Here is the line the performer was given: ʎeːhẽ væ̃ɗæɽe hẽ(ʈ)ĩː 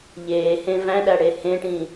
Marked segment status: correct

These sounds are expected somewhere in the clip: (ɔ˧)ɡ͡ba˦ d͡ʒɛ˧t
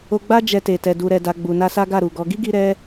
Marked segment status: incorrect: o˧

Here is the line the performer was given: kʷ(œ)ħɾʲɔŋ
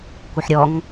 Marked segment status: correct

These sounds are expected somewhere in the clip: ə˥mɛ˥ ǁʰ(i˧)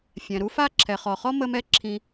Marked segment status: incorrect: ĩ˧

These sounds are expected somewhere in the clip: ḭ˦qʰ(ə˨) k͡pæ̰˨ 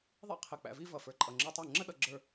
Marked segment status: correct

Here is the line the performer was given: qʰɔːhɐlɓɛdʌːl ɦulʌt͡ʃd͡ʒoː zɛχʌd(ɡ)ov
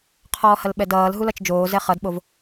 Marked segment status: incorrect: ɓ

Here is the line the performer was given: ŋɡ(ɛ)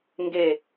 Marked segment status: incorrect: e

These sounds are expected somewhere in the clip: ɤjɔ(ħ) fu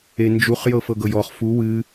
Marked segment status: incorrect: χ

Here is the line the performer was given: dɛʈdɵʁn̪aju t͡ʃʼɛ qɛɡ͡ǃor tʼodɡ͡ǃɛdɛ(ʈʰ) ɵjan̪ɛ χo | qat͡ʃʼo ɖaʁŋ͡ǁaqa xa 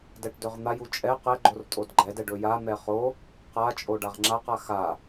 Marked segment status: incorrect: ɖ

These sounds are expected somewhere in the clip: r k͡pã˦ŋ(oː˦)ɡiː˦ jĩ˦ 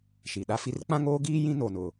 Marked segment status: correct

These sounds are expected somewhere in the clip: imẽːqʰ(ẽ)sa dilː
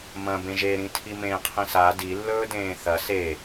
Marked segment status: incorrect: ĩ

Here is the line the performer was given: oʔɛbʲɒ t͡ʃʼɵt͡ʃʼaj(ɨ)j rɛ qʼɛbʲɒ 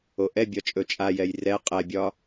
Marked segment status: incorrect: ɛ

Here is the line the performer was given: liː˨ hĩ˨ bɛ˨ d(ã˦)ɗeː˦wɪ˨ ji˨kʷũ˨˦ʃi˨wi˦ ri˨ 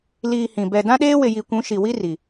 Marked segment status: correct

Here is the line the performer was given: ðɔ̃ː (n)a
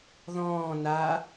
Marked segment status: correct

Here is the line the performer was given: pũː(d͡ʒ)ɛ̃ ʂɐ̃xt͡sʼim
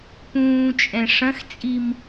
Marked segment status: incorrect: t͡ʃʼ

